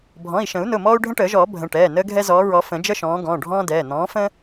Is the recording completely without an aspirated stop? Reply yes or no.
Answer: yes